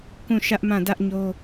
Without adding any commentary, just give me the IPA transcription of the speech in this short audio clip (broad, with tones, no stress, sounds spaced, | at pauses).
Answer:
k ũ˦˨ ʃ ä˦ ʔ m ã˦˨ d ä˦ ʔ ɲ o˦